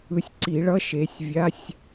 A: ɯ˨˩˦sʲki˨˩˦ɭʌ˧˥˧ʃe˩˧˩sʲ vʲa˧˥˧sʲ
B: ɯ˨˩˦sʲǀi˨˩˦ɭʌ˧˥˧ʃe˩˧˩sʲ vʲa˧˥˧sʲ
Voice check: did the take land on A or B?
B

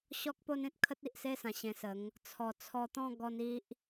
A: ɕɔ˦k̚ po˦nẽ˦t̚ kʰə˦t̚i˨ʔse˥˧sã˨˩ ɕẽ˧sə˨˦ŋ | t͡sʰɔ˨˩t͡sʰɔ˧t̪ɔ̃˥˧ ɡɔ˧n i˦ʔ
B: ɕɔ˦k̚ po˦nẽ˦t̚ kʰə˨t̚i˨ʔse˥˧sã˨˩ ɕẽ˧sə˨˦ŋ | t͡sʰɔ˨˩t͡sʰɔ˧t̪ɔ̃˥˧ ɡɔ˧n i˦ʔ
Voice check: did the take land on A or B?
A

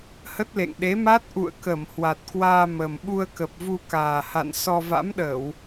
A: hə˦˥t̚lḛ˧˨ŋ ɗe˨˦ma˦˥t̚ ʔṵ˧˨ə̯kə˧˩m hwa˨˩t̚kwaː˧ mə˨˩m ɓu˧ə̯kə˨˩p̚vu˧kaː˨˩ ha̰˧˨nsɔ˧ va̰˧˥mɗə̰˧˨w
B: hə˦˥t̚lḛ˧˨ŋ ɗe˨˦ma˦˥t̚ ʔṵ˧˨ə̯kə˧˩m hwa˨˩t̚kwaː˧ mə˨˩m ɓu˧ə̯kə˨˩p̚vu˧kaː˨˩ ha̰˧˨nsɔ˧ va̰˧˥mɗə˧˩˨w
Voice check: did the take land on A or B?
B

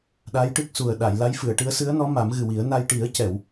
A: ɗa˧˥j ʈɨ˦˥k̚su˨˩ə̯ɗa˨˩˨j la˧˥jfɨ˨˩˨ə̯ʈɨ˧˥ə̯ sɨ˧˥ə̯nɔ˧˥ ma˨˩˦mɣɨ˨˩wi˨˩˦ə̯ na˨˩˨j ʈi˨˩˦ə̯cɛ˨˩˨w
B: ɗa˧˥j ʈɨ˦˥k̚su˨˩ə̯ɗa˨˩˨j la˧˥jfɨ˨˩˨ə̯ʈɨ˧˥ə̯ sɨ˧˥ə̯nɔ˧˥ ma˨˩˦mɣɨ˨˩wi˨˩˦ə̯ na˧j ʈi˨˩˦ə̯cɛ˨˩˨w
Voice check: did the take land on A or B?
B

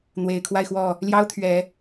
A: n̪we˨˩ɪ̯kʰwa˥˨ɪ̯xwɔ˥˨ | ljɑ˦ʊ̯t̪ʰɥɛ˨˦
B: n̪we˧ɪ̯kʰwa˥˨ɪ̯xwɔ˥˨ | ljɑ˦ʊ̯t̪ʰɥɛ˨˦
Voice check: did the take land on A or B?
A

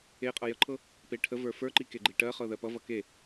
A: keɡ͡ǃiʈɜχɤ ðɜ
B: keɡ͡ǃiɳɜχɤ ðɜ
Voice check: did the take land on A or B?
A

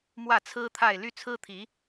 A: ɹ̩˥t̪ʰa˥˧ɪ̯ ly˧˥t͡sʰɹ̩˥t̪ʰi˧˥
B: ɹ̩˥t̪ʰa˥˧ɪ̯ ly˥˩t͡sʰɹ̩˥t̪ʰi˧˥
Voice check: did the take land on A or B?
B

